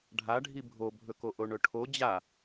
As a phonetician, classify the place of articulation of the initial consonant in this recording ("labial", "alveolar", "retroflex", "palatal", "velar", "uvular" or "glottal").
retroflex